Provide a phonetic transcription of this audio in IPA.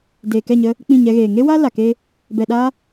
deː˨kɛ˦˨ɲə˧ | k͡pĩ˦˨ɲɛ˧ɣeː˨ ŋe˦wa˦ la˨ke˦ | bɛ˨ɗa˧

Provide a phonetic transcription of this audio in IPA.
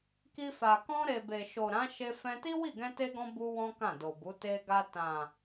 ki˧fa˨ kɔ̃˧ɾe˨ be˨ʃo˨ɾã˨˦ʃe˧ fɛ̃˧ti˦wi˦˨ ɡɛ̃˧te˧ɡɔ̃˧ bu˦wɔ̃˦ kã˦˨do˨bu˨˦ te˧ɡa˧ tã˨

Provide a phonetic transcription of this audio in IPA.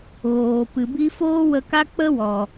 ɣoː˨pɨ˨bi˦ foː˦ wə˧ka˦ k͡pə˦wɔ˨

